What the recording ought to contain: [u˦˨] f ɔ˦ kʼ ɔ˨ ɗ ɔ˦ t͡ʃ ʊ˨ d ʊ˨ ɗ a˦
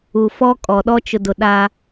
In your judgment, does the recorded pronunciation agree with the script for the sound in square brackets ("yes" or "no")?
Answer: no